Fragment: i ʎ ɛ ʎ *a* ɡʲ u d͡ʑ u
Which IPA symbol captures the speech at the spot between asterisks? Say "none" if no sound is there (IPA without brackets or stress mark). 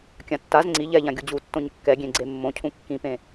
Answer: ã